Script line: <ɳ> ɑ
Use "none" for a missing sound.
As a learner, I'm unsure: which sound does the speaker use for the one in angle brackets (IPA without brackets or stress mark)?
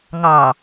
ŋ